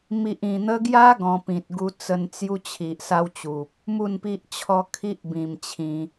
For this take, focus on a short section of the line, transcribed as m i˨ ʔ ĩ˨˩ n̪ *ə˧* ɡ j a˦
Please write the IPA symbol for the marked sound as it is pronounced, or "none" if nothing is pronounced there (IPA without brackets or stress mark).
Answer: ə˧